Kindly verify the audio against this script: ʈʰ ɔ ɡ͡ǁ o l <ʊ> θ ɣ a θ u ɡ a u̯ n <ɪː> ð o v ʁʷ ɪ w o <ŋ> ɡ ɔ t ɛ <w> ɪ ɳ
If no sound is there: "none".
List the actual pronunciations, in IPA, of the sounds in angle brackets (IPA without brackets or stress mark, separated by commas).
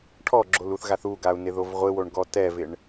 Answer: u, ɪ, ɳ, v